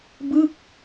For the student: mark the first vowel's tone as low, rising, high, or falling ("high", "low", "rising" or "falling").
falling